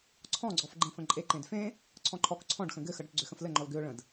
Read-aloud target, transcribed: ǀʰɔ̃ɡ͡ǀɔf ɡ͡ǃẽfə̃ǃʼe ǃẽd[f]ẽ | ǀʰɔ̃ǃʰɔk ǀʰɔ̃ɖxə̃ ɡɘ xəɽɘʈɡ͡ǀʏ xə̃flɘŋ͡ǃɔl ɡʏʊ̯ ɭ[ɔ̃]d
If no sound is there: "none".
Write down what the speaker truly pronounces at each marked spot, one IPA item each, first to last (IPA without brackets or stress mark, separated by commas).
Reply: f, ə̃